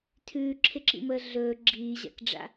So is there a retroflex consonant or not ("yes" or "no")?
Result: yes